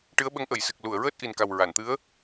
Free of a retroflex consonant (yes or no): no